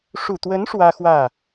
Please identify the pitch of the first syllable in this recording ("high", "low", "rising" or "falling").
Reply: low